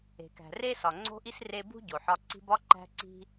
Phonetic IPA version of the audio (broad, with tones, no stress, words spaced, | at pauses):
e̤˨kæ̤˨re˥sɒ˨ ŋ͡ǀo̤˥ʔi˥sre˦bṳ˥ ɟo˨ħɒ˦ ǀi̤˦bɒ˥ ǃæ̤˦ǀi̤˦